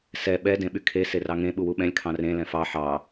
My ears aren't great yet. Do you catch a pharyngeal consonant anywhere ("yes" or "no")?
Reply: yes